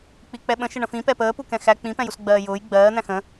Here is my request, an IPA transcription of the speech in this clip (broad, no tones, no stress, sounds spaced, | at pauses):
k͡p i k͡p ɛ ɓ ə̃ ʃ ɪ ɳ ə̃ f ĩ p ɛ p əː p u k ɛ̃ x æ k͡p ĩ p ɛ̃ j u s ɡ͡b ɜː j ʊː j ɡ͡b ɜː n̪ æ̃ x ə̃